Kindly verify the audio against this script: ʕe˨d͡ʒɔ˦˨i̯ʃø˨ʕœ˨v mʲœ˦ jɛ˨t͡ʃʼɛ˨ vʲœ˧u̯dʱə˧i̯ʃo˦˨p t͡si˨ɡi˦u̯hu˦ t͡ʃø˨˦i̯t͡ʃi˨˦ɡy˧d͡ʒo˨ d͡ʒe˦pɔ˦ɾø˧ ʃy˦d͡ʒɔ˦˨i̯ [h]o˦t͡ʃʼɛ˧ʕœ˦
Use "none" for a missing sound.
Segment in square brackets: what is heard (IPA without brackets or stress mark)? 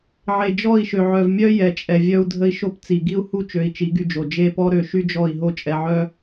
ɦ